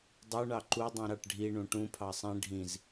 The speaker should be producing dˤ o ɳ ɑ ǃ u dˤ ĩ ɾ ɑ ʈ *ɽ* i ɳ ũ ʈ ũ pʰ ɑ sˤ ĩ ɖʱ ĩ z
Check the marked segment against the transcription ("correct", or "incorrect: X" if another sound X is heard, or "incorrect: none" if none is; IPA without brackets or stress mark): incorrect: ɖʱ